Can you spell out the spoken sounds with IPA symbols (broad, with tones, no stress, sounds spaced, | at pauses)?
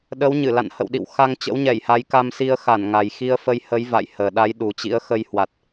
ɗ ə˨˦ w ɲ ɨ˧˩ l a̰˧˨ n h ə̰˧˨ w ɗ ḭ˧˨ w x a˧ ŋ t͡ɕ ə̰˧˥ w ɲ ɛ˧˩ j h a˨˦ j k a˧ m s i˧ ə̯ x a˧˩ n ŋ a˨˩ j x i˧ ə̯ f ə˧ j h ə˨˦ j v a̰˧˨ j h əː˨˩ ɗ a˨˦ j ɗ u˨˩ t͡ɕ ḭ˧˥ ə̯ x ə˧ j h w a˨˩ t̚